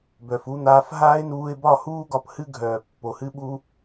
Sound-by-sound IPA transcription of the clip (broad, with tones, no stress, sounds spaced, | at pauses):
b œ˨ f u˧ n̪ aː˧ f ɦ aː˦ ɪ̯ n uː˧ ɪ̯ b ɒ˦˨ h uː˦ ɡ ɒ˧ p h ɨ˦ ɡʱ œː˨ pː o˨ h ɨ˦ ɓ uː˦